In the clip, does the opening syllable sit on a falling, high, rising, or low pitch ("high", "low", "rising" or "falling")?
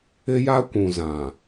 high